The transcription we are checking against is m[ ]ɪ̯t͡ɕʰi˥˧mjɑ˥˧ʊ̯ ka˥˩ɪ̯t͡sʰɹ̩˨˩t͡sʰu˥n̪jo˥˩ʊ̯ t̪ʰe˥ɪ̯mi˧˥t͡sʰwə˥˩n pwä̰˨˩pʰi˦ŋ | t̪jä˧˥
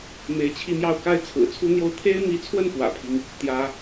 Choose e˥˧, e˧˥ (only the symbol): e˧˥